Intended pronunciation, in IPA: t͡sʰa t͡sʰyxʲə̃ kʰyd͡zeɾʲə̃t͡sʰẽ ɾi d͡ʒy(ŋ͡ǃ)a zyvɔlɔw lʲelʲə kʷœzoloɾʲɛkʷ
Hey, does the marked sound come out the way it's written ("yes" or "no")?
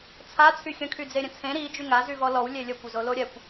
no